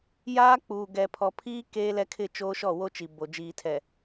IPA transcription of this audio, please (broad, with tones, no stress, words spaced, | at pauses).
jaː˦k͡puː˨ɡɛ˨ pʰɔ˨pʰiː˦ keː˦lɛ˦kʰɪ˦˨t͡ʃoː˦ ʃɔ˦˨wo˦t͡ʃi˨ bo˨ d͡ʒiː˨tʰɛ˨